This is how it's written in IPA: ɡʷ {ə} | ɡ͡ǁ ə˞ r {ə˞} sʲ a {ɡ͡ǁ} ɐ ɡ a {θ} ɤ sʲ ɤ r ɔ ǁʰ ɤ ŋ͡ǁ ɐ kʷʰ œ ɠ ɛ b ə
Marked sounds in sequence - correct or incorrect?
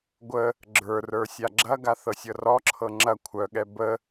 correct, correct, correct, correct

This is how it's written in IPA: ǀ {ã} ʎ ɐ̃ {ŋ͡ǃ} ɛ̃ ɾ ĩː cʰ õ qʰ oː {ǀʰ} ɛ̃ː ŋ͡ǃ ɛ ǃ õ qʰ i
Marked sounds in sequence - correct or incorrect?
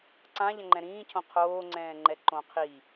correct, correct, incorrect: ŋ͡ǀ

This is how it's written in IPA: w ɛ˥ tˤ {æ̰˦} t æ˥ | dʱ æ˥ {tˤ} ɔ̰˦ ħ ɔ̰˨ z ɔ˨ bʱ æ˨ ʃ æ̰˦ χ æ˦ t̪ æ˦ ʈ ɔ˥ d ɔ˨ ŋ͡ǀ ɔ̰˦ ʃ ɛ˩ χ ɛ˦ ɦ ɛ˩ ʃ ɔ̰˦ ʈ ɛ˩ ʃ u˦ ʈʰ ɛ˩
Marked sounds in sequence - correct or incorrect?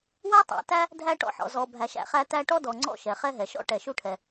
incorrect: æ̰˨, incorrect: ʈ

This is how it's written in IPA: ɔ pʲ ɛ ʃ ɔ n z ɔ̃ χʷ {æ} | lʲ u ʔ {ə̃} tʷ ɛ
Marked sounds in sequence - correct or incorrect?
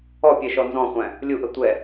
incorrect: æ̃, incorrect: ə

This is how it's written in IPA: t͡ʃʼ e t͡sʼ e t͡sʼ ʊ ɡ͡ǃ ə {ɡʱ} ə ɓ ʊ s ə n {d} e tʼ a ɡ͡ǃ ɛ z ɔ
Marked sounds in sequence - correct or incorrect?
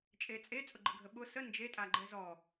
correct, incorrect: d͡ʒ

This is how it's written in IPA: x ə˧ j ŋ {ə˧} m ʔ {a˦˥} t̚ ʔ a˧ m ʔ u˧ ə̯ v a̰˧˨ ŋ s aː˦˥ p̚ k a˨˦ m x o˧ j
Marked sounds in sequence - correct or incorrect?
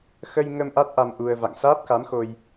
correct, correct

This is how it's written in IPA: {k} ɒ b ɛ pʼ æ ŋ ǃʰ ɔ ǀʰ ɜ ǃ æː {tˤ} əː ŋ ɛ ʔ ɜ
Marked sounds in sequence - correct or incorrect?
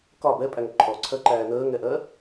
correct, incorrect: n

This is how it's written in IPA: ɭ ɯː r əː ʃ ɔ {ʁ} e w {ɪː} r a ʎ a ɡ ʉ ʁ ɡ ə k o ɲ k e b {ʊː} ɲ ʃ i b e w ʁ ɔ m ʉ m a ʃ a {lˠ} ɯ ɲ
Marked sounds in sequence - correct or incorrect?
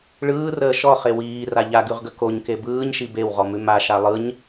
incorrect: χ, incorrect: iː, incorrect: ɯː, correct

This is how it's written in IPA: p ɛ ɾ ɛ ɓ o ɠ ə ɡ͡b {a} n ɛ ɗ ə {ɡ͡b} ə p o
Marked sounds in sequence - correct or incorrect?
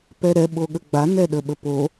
correct, incorrect: ɓ

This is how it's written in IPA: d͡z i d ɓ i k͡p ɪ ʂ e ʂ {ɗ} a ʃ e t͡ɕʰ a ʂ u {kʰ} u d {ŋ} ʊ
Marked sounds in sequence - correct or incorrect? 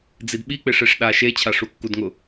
correct, incorrect: kː, correct

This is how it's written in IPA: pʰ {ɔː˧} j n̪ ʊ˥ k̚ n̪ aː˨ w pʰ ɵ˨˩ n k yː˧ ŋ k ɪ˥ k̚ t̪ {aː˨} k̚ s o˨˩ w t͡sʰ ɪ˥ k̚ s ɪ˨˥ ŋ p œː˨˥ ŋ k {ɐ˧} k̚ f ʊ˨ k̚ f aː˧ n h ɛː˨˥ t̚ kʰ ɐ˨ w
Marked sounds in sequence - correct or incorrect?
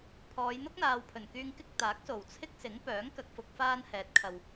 incorrect: ɔː˨˧, incorrect: aː˨˥, incorrect: ɐ˨

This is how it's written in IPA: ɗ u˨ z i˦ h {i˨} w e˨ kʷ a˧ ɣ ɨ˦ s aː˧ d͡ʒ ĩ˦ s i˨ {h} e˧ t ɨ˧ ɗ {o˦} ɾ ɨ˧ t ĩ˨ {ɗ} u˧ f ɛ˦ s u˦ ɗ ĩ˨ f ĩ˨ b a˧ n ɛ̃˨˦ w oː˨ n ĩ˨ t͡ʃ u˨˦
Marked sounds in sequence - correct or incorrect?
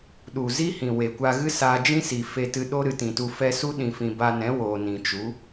incorrect: ĩ˨, incorrect: f, correct, incorrect: t

